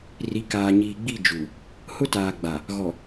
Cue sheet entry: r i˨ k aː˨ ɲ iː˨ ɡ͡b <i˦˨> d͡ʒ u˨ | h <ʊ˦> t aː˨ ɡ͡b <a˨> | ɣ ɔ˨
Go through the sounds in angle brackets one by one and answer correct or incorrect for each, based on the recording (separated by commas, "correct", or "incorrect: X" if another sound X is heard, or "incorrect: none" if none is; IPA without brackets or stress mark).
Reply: correct, correct, correct